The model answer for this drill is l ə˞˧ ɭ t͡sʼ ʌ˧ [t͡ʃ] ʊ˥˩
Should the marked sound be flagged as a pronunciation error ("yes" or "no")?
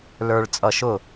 yes